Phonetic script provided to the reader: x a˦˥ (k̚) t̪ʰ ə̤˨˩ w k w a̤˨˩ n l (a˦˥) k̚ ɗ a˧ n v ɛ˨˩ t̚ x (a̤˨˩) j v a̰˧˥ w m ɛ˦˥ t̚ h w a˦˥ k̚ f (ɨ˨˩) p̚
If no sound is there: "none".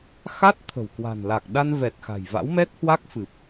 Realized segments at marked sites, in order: t̚, a˨˩, a̤˨˩, ɨ˨˩

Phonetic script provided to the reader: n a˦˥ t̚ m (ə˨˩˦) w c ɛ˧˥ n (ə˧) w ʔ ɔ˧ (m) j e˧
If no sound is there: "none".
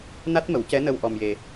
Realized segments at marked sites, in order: ə˨˩˦, ə˧, m

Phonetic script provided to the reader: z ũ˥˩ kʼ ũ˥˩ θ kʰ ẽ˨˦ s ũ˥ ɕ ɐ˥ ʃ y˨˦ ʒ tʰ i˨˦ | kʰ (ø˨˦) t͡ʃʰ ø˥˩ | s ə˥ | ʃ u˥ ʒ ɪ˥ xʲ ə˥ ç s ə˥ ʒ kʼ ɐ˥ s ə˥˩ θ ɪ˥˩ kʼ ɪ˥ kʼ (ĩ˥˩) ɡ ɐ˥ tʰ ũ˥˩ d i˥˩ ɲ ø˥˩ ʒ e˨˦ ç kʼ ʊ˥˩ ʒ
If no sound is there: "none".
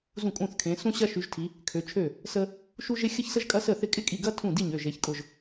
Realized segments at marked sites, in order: ø˨˦, i˥˩

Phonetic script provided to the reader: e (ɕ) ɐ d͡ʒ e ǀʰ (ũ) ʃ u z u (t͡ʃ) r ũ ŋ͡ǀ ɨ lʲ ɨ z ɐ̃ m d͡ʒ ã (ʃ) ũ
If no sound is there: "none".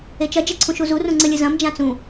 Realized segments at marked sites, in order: t͡ʃ, ũ, none, t͡s

